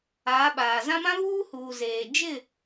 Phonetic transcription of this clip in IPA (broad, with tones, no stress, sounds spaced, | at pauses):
aː˨˦ ɓ aː˨ z ã˦ m ã˦ β uː˦ h uː˨ z eː˨ d͡ʒ ɪ˦˨